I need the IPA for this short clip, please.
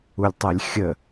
ulʲtˤɛlʲxʲə

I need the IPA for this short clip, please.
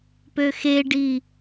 pøxeɖi

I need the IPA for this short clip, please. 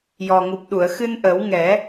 jɔ˨˩ŋu˨˩p̚ɗu˨˩˨ə̯ xɨ˧n ʔə˨˩˦w ŋɛ˨˩˦

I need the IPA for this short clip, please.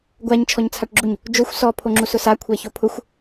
ɡʷaɲ t͡ʃʰɔɲt͡sʰaʈɡ͡ǁuɲ | d͡ʒoxʷ sɔ pʰoŋ͡ǁusʊsa kʷʰɛçopʰʊxʷ

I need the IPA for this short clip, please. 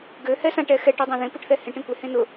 ɡø hɛsãʈ ɛxɛʈ idˤãðẽ puʈθɛhẽʈ ẽkʷe hẽnʊ

